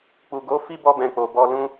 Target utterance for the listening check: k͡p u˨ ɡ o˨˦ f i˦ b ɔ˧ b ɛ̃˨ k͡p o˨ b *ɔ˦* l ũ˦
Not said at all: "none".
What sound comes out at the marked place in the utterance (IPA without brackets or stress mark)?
ɔ˧